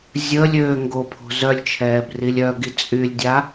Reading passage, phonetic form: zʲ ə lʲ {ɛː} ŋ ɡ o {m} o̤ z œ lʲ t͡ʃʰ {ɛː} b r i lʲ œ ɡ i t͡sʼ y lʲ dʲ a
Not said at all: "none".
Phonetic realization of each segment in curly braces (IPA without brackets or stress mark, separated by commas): øː, pʰ, ɛː